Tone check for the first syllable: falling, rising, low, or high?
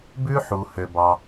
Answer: high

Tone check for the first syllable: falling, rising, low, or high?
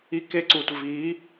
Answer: high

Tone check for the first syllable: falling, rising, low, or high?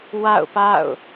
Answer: falling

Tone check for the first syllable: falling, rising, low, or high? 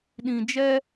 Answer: high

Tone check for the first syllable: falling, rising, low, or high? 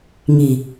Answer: low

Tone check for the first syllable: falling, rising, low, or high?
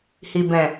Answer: low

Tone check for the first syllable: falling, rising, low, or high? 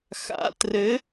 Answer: rising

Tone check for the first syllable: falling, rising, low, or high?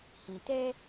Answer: low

